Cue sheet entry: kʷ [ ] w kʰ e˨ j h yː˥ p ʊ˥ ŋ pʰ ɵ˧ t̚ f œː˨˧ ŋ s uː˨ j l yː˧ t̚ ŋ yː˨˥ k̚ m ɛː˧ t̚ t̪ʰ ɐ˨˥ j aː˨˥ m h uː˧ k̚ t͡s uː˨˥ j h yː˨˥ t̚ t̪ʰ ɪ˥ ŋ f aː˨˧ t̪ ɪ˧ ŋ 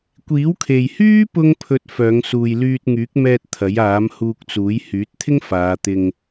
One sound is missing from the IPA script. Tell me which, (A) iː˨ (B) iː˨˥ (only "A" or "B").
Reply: B